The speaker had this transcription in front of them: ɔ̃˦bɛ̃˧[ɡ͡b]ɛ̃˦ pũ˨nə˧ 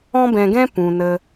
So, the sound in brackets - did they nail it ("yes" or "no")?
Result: no